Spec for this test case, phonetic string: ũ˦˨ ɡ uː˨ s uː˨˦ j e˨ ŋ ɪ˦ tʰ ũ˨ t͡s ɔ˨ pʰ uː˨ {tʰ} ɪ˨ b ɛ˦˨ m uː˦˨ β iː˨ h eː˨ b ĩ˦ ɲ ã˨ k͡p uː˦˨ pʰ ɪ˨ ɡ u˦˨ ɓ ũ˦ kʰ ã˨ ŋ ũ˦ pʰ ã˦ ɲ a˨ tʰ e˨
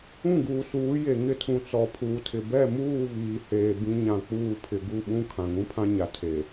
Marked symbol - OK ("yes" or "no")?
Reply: yes